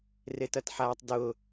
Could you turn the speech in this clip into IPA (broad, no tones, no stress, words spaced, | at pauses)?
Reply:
retɐtħaːtˤdʊː